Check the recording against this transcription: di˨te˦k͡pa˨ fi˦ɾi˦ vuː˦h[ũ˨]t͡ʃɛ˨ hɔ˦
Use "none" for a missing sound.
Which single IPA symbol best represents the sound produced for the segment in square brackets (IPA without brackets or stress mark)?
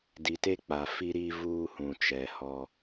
ũ˨